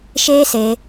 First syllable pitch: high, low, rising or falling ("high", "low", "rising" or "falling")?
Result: high